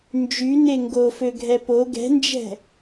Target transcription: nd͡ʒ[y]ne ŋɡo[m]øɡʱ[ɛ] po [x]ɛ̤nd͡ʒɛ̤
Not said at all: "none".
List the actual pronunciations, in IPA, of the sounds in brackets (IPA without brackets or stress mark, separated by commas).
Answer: y, f, ɛ, ɡ